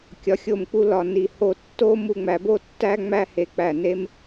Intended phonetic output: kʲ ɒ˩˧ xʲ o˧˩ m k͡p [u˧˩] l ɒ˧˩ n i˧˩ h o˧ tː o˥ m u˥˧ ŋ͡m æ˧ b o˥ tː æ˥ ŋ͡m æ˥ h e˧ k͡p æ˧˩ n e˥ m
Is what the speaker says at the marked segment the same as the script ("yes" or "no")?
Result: no